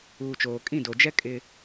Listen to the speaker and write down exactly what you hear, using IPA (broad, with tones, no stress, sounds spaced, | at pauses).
uː˨ t͡ʃ oː˨ kʼ ĩ˦˨ d o˨ d͡ʒ ɛ˦ kʼ ɪ˦